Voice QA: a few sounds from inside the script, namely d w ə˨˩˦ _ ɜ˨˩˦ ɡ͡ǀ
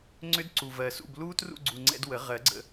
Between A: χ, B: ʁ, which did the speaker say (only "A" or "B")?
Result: B